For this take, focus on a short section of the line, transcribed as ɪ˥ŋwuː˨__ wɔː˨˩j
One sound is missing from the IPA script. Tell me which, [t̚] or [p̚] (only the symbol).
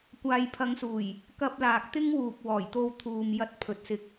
p̚